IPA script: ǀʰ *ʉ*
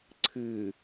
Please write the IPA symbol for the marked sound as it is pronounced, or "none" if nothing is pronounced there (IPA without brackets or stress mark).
ɨ